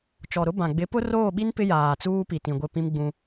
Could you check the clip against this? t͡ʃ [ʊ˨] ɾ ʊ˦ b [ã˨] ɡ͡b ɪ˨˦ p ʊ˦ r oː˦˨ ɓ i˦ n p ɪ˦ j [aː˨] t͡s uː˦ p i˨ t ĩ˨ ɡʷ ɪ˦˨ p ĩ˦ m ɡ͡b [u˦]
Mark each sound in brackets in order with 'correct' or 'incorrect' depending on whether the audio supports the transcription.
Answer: incorrect: ɔ˨, correct, correct, incorrect: ũ˦

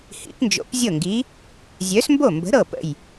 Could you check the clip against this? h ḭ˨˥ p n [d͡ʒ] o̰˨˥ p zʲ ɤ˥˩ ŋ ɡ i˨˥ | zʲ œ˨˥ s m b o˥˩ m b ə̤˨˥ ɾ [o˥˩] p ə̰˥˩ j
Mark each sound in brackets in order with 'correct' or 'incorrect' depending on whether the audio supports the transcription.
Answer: correct, incorrect: ɤ˥˩

